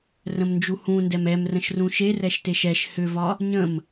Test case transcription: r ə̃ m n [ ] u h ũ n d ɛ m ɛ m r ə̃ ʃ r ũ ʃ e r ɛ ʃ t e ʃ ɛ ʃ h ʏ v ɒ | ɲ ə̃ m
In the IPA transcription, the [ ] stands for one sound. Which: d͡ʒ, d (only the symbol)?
d͡ʒ